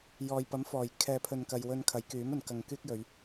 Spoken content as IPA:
j ɔː˨ j p ɐ˨˥ m f ɔː˨˩ j kʰ ɛː˨ pʰ ɵ˨ n k ɐ˨ j w ɵ˧ n kʰ ɐ˨˥ j k yː˨˥ m ɵ˨ n k ɐ˨ ŋ k yː˥ k̚ j ɵ˨˧ ɥ

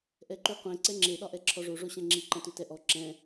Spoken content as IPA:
ʔ ɛ ǃ ʉ qʷ ɛ̃ ǀ ɛ ŋ͡ǁ e ɗ ɒ ʔ ɛ ǁʰ ɔ ʐ o ʐ o ɕ ɛ̃ ŋ͡ǁ i ǃ ɛ̃ t ʉ t ɛ ʔ ɔ ǁ ɛ̃

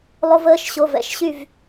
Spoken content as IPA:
lˠ o˧ v əː˩˧˩ ʃ ɕ o˩˧˩ v ɛ̰˧˩ ʃ ɕ y˧˩ v

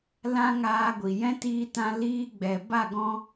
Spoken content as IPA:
l ã˦ ŋ aː˧ ɡʷ i˨ j ɛ̃˦ t iː˧ t ã˧ l iː˦ ɡ͡b ɛ˨ b a˦˨ ɡ ɔ̃˦

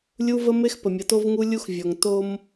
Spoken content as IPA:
lʲ u˦ v ə˦ m e˦ x p ə˨ mʲ ə˨˦ t o˦ v ŋ u˦ lʲ u˦ x vʲ o˨ ŋ t o˦ m

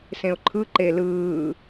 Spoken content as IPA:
s ẽ ʊ̯ ǃʰ ɯ ǃ e l ɯː

